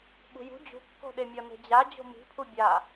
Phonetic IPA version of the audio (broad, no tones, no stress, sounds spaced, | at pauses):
ɓ ṳ j ṳ d͡ʑ ṳ kː o̤ ɗ e mʲ ɒ n e̤ d͡ʑ a d͡ʑ o̤ m i̤ pʰ u bʲ a